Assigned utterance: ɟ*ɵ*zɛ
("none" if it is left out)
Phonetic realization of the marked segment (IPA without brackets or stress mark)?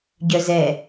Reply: œ